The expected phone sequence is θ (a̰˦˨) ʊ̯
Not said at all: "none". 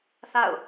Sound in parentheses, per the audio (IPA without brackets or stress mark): a̰˦˨